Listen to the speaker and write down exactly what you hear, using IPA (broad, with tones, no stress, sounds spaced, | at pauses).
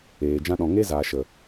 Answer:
eː˨ d͡ʒ ã˧ ɗ ɔ̃˨ ŋ e˦ z aː˨ ʃ ə˨